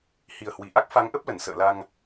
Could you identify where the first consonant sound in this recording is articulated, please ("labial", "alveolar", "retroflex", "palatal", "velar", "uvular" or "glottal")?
glottal